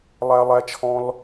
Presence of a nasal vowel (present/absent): present